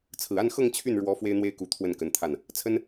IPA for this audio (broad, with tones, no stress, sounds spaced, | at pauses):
t͡sʰ ɹ̩˨˩ a˥˧ n x ɤ˥˧ ŋ t͡ɕʰ y˥˩ n ɻ w ɔ˧˥ f w e˥ ɪ̯ n̪ w e˥ ɪ̯ k u˧˥ t̪ʰ w ə˥˩ n k ə˧˥ n t̪ʰ a˥˩ n | t͡sʰ ə˥ n